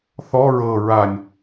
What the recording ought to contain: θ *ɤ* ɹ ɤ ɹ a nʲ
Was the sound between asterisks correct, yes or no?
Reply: no